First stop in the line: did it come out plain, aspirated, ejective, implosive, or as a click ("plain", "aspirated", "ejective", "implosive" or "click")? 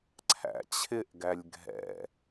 click